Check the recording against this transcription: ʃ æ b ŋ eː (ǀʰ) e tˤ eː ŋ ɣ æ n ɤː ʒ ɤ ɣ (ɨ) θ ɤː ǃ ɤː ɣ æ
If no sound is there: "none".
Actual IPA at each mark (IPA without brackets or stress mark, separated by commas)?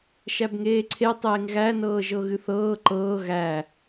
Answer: ǀʰ, ɨ